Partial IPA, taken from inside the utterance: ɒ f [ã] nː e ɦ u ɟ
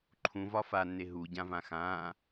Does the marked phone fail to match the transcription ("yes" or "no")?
yes